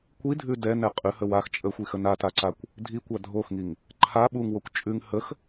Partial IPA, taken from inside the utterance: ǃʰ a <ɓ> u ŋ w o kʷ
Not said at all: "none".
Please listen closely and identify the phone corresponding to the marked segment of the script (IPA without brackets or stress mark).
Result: ɓ